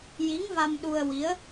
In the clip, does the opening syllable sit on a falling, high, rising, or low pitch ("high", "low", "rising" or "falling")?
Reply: rising